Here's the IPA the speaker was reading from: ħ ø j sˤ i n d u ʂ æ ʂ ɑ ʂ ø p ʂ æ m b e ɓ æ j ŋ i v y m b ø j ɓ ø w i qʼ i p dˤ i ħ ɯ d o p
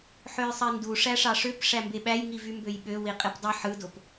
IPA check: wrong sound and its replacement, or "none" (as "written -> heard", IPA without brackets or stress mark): none